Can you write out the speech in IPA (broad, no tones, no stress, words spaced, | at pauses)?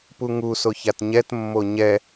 puŋusoç atɲɛtmːo ɲɛ